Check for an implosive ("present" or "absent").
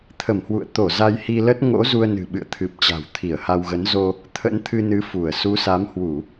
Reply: present